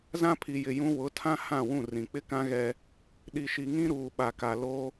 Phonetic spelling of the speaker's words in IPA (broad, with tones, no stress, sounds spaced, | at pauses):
z ã˦ pʰ i˨ j ɪ˨ j ũ˦ w ʊ˨˦ tʰ ã˦ h ã˦˨ w ũ˦˨ r ĩ˨ k͡p ɪ˦ k ã˦ ɣ ɛ˦ | ɗ i˨ ʃ i˨ ŋ ĩ˦ ɾ uː˨ ɓ a˨ k a˨ l o˦